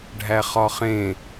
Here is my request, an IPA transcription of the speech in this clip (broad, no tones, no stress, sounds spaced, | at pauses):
ɖʱ æ χ ɒ χ ẽ